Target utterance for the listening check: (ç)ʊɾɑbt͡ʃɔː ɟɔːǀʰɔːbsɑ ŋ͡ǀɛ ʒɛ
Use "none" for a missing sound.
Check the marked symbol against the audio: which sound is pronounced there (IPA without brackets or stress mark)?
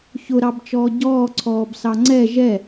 ç